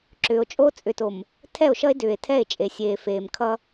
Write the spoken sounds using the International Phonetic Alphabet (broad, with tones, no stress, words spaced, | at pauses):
ǁʏː˨o̯t͡ʃʼo˦ t͡sʼʏ˨to˨m | tʰɛ˦˨o̯ʃʌ˦e̯ dʏː˨e̯tʰɛ˦˨e̯ t͡ʃʼe˨sʲeː˨feː˨m kʰʌ˦